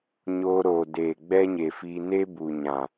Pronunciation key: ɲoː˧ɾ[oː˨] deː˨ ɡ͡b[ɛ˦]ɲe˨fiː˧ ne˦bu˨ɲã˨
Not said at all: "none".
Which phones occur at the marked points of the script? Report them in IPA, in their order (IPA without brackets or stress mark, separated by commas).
oː˨, ɛ˦